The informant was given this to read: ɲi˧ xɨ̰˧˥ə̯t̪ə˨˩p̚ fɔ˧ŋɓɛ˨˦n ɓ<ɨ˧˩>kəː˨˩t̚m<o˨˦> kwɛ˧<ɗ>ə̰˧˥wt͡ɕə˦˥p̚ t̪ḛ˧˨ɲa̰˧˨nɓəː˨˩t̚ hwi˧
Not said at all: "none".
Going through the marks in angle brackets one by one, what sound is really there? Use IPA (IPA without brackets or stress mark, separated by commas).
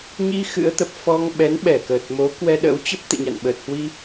ɛ˧˩, o˨˦, ɗ